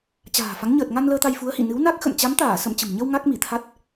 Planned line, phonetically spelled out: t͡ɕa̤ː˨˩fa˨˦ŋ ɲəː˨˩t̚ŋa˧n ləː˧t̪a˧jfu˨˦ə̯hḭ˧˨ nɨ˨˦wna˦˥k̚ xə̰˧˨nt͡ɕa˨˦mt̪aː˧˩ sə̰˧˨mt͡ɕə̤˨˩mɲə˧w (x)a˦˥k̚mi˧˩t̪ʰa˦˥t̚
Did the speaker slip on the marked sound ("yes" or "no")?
yes